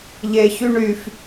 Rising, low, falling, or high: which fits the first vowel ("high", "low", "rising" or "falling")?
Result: high